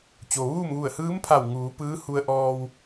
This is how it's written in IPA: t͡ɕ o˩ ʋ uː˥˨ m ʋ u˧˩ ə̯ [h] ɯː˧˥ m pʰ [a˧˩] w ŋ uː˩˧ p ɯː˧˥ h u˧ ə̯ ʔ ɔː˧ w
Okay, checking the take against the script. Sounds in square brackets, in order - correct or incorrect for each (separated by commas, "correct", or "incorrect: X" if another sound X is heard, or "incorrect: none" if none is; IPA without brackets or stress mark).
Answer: correct, correct